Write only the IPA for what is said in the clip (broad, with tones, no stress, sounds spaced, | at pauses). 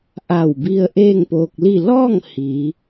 ʔ a˧˩ w b i˧ ə̯ ʔ eː˥˨ ŋ p oː˧ k̚ l i˥˨ l ɔː˥˨ ŋ h iː˩˧